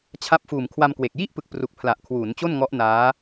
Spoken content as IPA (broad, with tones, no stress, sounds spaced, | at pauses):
t͡ɕʰ a˦˥ p̚ f uː˨˩ m kʰ w a˧ m k w e˨˩ k̚ j i˥˩ ʔ p ɯ˨˩ k̚ p r u˨˩ k̚ pʰ l a˨˩ ʔ kʰ w uː˩˦ n t͡ɕ o˥˩ n ŋ ɔ˦˥ ʔ n aː˦˥